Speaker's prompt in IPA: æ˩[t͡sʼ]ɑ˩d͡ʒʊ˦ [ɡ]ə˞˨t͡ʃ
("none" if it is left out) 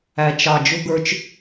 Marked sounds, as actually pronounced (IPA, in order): t͡ʃ, ɡ

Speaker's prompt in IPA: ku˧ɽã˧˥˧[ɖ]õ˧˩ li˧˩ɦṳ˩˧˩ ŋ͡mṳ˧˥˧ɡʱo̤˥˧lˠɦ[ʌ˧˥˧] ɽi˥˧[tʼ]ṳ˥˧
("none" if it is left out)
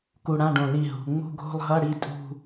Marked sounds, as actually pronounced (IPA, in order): ɖ, ʌ˧˥˧, tʼ

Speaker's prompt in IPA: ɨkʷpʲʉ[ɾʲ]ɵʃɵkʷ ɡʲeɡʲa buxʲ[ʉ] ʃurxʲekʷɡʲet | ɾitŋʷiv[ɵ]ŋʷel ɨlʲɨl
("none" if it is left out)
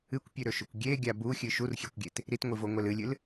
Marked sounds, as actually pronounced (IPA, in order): ɾ, ɨ, o

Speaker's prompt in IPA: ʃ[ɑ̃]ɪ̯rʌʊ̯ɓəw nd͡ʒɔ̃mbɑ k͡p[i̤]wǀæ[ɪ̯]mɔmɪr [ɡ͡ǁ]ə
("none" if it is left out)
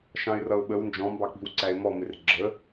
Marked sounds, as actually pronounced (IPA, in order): ɑ̃, i̤, ɪ̯, ɡ͡ǁ

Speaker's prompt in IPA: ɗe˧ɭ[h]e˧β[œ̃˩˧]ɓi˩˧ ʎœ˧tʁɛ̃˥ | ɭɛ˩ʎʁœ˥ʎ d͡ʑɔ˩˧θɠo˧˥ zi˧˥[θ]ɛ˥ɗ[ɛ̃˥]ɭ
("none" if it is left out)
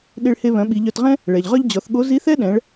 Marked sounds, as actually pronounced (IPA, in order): h, œ̃˩˧, θ, ɛ̃˩˧

